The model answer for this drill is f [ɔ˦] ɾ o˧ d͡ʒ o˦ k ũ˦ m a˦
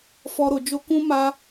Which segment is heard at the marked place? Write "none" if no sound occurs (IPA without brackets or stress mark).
ɔ˦